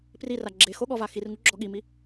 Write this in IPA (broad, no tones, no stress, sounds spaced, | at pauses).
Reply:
p r i r a ɡ͡ǁ e x o ɠ ɔ v a x i r ŋ u ɡ͡ǁ ɔ ɠ i m i